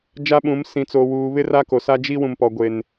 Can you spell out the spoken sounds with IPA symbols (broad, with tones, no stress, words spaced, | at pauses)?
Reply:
d͡ʒa˦ɓũ˨˦m sĩ˨t͡so˨ wuː˨ βɪ˦ra˦ko˨ sa˦d͡ʒi˦ wũ˨mpɔ˨ɡʷe˨n